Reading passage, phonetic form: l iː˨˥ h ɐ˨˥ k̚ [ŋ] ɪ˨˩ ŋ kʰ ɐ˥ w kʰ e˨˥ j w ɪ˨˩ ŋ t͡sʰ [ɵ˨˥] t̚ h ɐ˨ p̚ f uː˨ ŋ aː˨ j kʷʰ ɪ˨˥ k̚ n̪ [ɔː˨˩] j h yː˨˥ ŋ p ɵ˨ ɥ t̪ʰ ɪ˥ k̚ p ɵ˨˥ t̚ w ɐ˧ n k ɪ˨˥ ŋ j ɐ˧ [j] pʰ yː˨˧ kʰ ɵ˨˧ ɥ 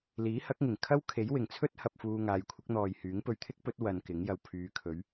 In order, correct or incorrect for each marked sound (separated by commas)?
correct, incorrect, incorrect, incorrect